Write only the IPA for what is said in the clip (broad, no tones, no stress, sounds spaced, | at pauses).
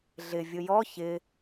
ɮ ɪ vʲ ʊ j ɔ ç ɪ